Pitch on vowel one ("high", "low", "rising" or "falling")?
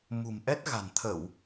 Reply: low